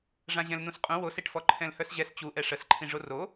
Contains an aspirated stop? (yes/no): yes